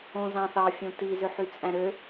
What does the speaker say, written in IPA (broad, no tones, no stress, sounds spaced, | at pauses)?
õ z ɑ̃ θ ɑ fʲ õ t i z ø ħ y t͡sʼ æ̃ ɾ ø